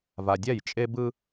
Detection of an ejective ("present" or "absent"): present